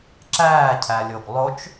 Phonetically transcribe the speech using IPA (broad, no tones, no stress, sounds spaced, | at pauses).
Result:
ǁ æː cʰ æ lʲ o ɡ lˠ o t͡ʃ